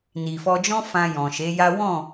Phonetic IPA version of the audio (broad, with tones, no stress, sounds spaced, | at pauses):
n i˨ f ɔ˧ d͡ʒ ɔ̃˦ f ã˧ j ɔ̃˨ ʃ e˨˦ j a˦ w ɔ̃˦˨